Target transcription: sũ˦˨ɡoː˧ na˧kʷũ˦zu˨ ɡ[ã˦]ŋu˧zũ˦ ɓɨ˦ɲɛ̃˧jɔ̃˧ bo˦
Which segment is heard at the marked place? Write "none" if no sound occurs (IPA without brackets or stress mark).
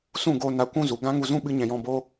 ã˦